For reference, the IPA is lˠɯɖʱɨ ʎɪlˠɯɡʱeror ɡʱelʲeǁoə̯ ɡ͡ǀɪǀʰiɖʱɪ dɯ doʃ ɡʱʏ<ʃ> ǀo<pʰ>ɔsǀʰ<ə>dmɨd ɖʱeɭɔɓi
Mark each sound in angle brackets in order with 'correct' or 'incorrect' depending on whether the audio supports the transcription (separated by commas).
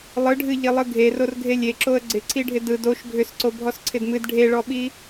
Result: incorrect, incorrect, incorrect